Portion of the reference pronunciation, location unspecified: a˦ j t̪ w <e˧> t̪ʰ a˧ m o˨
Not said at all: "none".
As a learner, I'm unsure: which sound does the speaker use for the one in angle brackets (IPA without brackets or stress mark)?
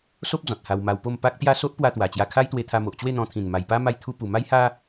e˧